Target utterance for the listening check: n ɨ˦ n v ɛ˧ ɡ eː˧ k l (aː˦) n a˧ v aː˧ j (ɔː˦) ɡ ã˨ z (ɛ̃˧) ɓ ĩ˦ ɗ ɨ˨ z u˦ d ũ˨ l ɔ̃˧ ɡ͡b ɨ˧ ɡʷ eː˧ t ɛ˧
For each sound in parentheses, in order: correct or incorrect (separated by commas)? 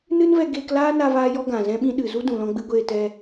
correct, incorrect, incorrect